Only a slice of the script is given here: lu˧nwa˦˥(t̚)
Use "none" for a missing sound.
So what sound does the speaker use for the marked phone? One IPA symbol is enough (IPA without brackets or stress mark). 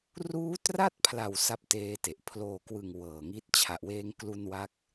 k̚